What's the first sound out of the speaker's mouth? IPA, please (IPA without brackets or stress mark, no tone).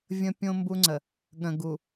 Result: vʲ